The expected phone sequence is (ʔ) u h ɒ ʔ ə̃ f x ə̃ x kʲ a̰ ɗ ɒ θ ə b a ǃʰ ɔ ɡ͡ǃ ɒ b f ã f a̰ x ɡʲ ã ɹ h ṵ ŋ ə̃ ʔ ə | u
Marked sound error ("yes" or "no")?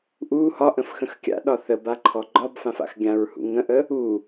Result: no